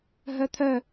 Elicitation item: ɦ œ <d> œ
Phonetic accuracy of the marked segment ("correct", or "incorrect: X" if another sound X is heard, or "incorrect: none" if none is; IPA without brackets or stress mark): incorrect: t̪ʰ